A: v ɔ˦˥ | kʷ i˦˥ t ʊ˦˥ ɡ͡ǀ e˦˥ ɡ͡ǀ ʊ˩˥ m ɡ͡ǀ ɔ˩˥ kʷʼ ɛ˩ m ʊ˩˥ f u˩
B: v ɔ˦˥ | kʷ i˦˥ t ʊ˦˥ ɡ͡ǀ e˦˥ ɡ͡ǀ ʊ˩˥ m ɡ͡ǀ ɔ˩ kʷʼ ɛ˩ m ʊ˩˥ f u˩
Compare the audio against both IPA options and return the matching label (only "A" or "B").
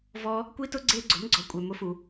A